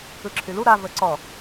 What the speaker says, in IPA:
ɯ ǁʰ y l u ɾ a v ə ǀ ɔ

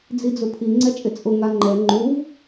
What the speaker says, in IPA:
d͡z i d͡z ʊ pʰ i ŋ͡ǀ ɛ t͡ʃʼ ɪ t͡sʼ ʊ ŋ a ŋ͡ǃ ɛ ŋ͡ǃ u v

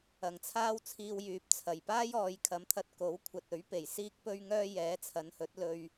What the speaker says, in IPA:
ɐ˨˩ ŋ t͡sʰ aː˥ w t͡sʰ iː˧ w j yː˨ p̚ t͡sʰ ɐ˨˩ j p aː˥ j ɔː˨˧ j kʰ ɐ˨˥ m t̪ʰ ɐ˧ t̚ k o˨˥ w kʷʰ ɐ˨ t̚ ɵ˨˥ ɥ p e˨˩ j s iː˥ k̚ p ɵ˥ ɥ ŋ œː˥ j ɛː˨˥ t͡sʰ ɐ˨˧ n h ɵ˨˥ t̚ l ɵ˧ ɥ

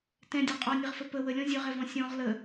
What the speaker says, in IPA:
t ɛ̃ dʲ ɔ qʼ ɔ nʲ ə ʁ f ə p ə w ə lʲ ɔ̃ zʲ ɵ ʁ ɛ v ɔ̃ sʲ ɔ̃ ʁ l ə

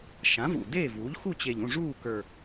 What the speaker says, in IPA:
ʃ ã˩˥ v ṵ˨˩ d eː˥˩ v uː˩˥ ʎ x u˥˩ t͡ɕ e˨˩ ʎ ũ˥˩ ʐ uː˥˩ k ə˞˨˩

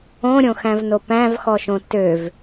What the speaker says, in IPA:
õ ɾʲ õ x æ̃ v n o p æ̃ v x ɔ ʃ õ t ø v

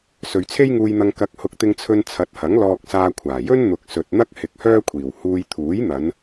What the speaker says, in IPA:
s ɵ˨ ɥ t͡sʰ e˥ j ŋ uː˧ j n̪ ɐ˧ ŋ k ɐ˨˥ k̚ h ʊ˨˥ k̚ t̪ ɪ˧ ŋ t͡sʰ ɵ˧ n t͡sʰ ɐ˨˥ t̚ h ɐ˨˥ ŋ l ɔː˧ k̚ s aː˧ kʷʰ aː˨˩ j ɵ˥ n n̪ ʊ˨ k̚ s ɵ˨ t̚ n̪ ɐ˥ k̚ h ɪ˧ k̚ h œː˥ kʷʰ iː˨˩ w h uː˧ j t̪ʰ uː˨˥ j n̪ ɐ˨˧ n

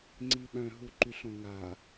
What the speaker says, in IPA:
ŋ͡ǀ i ɓ œ̃ ɦ u ǃ y ɬ õ ŋ a

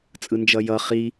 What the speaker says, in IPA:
t͡sʼ ɯ n d͡ʒ ʌ j ʌ χ i

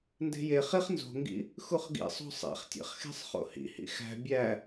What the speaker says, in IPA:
n d e̤ j e χ i χ n z o̤ ŋ ɡ ḭ | x u χ ɡ ḭ sˤ o̤ sˤ ḛ χ tʲ ḛ χ x e̤ sˤ χ o̰ h ḭ h ḭ x æ̤ bʲ æ

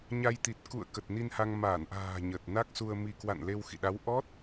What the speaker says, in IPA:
ɲ a˧ j t̪ i˨˩ t̚ k ṵ˧˨ ə̯ k ə˨˩ t̚ n i˧ n h a˧ ŋ m aː˧˩ n ʔ a̤ː˨˩ ɲ ə˨˩ t̚ n a˦˥ k̚ s u˧ ə̯ m i˧ k w a̰˧˨ n l e˧ w x ḭ˧˨ ɗ a˨˦ w ʔ ɔ˦˥ t̚

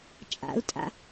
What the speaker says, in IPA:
t͡ʃʼ a̰ u̯ tʼ a̰

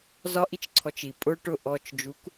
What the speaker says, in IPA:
z ɒ ʔ i t͡ʃ ǀʰ ɔ t͡ʃ i pʼ ʊ ʈ ʊ ʔ ɔ t͡ʃ d͡ʒ u k

